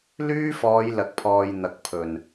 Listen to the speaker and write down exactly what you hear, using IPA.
l yː˥ f ɔː˨˧ j l ɐ˨ k̚ pʰ ɔː˨ j n̪ ɐ˨ k̚ pʰ ɵ˨˩ n

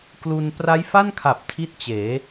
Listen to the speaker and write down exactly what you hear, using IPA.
k l u˧ n p r a˦˥ j f a˥˩ n kʰ a˨˩ p̚ tʰ i˥˩ t̚ t͡ɕ eː˩˦

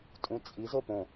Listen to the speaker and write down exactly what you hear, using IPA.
tʼ ũ t͡sʼ i z o p õ

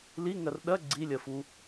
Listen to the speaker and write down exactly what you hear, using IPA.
l i ŋ ɜ r ɗ ɜ ɡ͡ǀ i lʲ ɜ f u

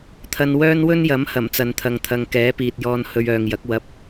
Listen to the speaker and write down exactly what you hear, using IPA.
t̪ʰ ɐ˧ n w œː˥ n w ɵ˥ n j ɐ˨˥ m h ɐ˨˩ m t͡s ɐ˨ n t̪ʰ ɐ˨ ŋ t̪ʰ ɐ˨ ŋ k ɛː˨˥ p iː˨ t̚ j ɔː˧ n h ɵ˧ ɥ œː˨ ŋ j ɐ˨˥ k̚ w ɐ˧ p̚

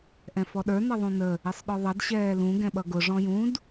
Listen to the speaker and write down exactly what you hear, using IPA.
ʔ ɛ̃ f ɔ ɗ ə˞ n ʌ ðˤ ũ n ə | ɪ sˤ ɗ ɔ ðˤ ʌ d ɕ ɛː l ũ ɡ ɛ̃ ɓ ʌ ɡ ʊ ʐ ɔ̃ j ũ d

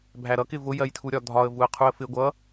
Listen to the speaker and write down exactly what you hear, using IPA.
bʱ æ ɾ ʌ k ɪ v ʊ j ɜ j tʰ u ɾʲ ɒ dʱ ɒ ə̯ v u ə̯ qʰ u ə̯ f ɪ ɡʷ ʌ

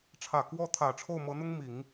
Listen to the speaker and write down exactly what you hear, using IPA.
ʈ͡ʂʰ ä˨˩ k w ɔ˥˩ t̪ʰ ä˨˩ ʈ͡ʂʰ o˥˩ ʊ̯ m ɤ˧˥ n̪ ʊ˥ ŋ m i˨˩˦ ŋ

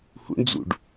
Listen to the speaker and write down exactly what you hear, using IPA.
h ṵ ɳ d͡z ṵ ɖ

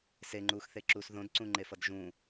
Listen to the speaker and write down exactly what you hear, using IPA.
s e ŋ͡ǃ uː x θ e ǁ uː s ð õ d ǀ ũ ŋ͡ǃ e f ʌ d ʒ ũ

